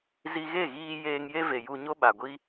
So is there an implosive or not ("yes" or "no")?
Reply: yes